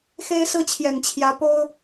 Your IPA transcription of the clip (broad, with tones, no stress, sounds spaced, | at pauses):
x e˦ ɪ̯ s ɹ̩˦ t͡ɕʰ j ɛ˨˩ n t͡ɕʰ j ä˨˦ p o˦ ʊ̯